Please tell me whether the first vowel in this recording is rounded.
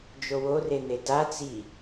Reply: yes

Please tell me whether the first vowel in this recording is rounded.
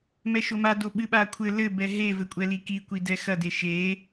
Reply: no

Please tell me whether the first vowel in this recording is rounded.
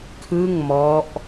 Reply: no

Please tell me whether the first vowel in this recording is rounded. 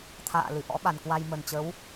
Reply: no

